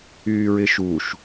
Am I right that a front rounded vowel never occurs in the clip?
no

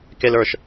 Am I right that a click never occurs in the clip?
yes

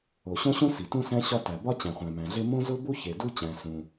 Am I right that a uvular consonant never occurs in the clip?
no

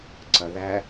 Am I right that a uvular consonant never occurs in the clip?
yes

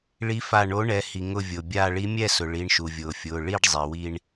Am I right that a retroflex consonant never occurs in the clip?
no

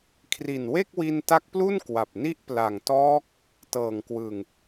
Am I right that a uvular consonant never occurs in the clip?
yes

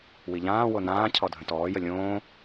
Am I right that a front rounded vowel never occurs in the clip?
yes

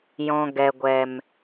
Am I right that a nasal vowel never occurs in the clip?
no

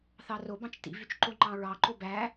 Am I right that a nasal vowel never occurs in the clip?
no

